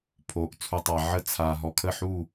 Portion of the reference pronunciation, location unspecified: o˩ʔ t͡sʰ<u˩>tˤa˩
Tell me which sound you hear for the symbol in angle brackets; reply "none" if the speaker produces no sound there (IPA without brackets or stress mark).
u˩